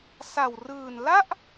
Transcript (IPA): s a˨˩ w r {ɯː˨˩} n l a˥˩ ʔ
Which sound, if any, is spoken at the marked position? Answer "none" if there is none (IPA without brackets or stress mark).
ɯː˨˩